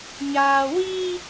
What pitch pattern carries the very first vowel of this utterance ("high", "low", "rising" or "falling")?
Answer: low